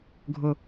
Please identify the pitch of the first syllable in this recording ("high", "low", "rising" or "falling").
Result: low